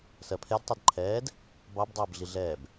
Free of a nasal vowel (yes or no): yes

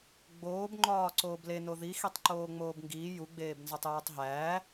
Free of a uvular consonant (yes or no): yes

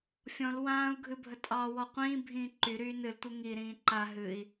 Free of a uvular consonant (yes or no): no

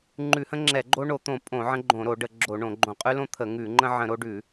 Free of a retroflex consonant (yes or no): no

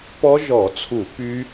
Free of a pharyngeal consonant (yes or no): yes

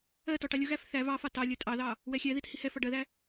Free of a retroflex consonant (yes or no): no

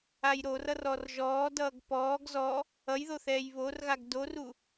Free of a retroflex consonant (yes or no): yes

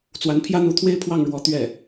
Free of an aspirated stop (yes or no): no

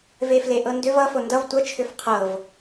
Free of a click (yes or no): yes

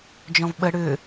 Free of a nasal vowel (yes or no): no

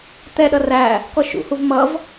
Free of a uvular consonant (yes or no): yes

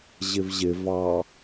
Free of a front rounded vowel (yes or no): yes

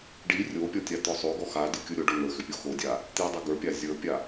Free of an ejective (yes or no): yes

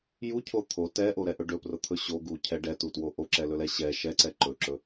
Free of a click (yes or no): no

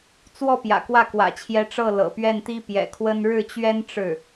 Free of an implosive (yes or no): yes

